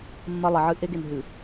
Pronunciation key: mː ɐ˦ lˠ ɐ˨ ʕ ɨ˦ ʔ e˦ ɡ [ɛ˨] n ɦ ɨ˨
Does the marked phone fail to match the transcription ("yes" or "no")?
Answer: yes